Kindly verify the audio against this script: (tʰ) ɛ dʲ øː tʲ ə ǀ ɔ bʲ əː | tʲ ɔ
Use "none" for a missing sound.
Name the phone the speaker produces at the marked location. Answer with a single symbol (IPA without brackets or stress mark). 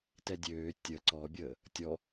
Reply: t